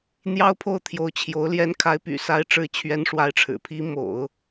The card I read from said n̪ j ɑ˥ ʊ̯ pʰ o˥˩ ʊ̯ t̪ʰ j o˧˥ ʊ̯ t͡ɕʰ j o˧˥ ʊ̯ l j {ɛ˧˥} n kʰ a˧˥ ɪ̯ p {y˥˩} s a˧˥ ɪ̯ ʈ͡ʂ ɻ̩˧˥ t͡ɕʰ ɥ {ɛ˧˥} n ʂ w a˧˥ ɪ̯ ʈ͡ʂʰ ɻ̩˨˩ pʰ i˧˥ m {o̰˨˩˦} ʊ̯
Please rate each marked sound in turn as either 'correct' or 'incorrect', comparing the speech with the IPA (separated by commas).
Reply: correct, incorrect, correct, correct